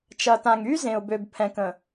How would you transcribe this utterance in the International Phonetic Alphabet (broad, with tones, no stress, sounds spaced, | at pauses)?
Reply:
t͡ʃ ɐ˨ t ã˨ ŋ y˦ z ẽ˨ ʊ̯ b ø˨ b pʰ ɛ̃˨ k ə̃˨